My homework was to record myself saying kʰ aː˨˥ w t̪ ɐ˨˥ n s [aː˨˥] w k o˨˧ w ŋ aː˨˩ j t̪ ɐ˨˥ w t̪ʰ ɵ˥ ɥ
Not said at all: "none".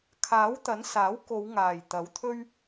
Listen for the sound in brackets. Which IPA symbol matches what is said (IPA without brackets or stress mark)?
aː˨˥